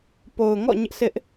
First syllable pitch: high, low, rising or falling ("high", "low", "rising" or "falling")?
low